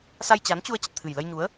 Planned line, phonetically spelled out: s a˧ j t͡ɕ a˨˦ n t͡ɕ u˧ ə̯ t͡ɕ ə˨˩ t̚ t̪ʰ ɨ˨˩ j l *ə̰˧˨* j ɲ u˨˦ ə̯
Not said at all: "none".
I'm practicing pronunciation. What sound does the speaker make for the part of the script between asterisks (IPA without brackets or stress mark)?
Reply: ə˧